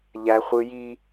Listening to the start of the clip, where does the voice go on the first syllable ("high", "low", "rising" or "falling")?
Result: high